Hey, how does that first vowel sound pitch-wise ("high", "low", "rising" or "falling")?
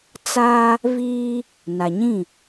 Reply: high